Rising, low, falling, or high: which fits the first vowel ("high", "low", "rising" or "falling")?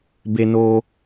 high